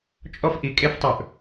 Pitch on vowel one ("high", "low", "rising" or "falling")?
high